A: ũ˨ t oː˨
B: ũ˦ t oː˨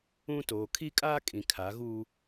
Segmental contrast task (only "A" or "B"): B